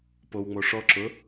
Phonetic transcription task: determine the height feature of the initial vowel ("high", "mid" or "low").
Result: mid